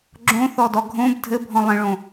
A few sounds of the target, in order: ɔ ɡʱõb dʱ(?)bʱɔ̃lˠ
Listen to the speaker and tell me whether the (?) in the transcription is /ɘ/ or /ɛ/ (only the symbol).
ɘ